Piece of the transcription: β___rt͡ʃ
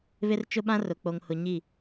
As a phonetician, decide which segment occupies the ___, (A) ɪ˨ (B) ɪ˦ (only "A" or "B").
B